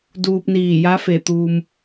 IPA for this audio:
d uː˧ p̚ n iː˧˩ j a˧˥ f e˧˩ t̪ uː˩ m

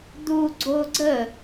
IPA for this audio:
d̪ u ɡ͡ǀ o ɡ͡ǀ ə

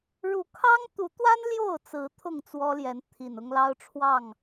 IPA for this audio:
ɻ u˨˦ kʰ ɑ˦ ŋ t̪ u˨˦ t̪ w a˦ n l j o˥˨ ʊ̯ t͡s ɹ̩˨˦ t̪ʰ ʊ˥˨ ŋ t͡s w ɔ˦ l j ɛ˨˦ n t̪ʰ i˨˩ n ʊ˦ ŋ l ɑ˦ ʊ̯ ʈ͡ʂʰ w ɑ˥˨ ŋ

